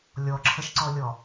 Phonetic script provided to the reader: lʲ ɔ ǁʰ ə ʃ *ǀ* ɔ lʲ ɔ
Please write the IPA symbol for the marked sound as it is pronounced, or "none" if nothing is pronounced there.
ǀ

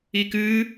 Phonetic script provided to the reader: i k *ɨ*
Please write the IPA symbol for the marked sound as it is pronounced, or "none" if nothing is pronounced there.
ɨ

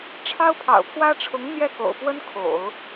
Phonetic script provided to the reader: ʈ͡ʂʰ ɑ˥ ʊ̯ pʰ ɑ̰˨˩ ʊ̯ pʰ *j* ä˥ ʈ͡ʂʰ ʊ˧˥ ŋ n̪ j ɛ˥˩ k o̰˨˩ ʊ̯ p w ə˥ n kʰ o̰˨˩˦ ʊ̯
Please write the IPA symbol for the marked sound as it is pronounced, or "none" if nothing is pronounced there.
w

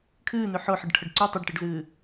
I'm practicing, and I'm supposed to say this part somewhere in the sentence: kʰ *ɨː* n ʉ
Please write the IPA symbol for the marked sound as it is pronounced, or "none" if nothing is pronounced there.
ɨː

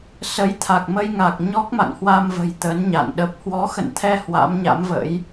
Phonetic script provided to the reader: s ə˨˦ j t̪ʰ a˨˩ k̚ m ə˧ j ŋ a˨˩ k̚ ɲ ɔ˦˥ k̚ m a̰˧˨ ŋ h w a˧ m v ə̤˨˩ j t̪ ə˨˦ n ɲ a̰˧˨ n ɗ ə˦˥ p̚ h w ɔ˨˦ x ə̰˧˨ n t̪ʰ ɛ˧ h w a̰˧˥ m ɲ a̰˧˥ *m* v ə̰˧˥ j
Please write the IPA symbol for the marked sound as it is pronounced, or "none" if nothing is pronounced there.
m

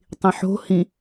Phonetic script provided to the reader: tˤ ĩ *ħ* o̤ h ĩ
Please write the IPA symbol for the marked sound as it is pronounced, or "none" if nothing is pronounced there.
ħ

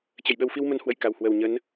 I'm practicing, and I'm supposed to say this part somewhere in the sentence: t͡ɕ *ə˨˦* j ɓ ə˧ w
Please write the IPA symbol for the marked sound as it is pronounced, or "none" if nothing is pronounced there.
ə˧˩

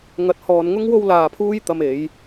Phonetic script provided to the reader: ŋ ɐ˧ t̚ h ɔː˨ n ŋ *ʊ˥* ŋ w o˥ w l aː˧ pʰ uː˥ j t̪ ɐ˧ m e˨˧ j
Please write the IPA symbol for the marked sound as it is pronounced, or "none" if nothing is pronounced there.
ʊ˥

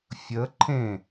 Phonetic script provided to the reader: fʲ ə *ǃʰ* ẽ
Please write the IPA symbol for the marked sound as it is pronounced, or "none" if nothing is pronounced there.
ǃʰ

